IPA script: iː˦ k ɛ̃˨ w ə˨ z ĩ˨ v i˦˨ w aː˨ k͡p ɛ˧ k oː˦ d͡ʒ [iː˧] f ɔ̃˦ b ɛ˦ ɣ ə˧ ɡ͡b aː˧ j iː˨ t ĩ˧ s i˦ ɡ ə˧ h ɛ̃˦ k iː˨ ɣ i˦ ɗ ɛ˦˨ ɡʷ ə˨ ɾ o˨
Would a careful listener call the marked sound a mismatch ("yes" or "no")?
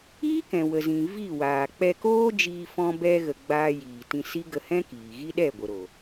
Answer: no